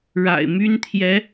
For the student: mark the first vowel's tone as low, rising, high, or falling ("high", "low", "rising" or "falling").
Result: low